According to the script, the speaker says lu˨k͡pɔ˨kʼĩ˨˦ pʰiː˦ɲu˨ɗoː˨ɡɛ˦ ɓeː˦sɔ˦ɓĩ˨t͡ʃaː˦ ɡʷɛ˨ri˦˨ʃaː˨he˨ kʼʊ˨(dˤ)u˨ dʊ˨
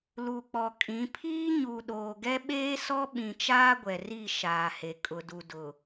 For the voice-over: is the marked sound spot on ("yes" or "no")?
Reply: no